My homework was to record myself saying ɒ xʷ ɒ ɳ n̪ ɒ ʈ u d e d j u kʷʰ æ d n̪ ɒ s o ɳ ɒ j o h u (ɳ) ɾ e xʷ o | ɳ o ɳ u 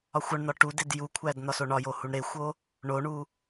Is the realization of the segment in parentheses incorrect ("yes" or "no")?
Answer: no